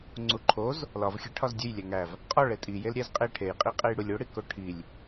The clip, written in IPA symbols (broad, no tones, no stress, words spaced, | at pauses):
ŋ͡ǀuǃʰoz | lɒvxʲe ʈʰɒzdʲujlʲæ ŋæv | qʼɒ ɭetʼijel ɾʲæzqʼe ʈʰejqʼi qʼejɽulʲoɽi koʈʰilʲ